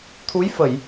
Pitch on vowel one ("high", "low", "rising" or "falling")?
rising